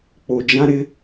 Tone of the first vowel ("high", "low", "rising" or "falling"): low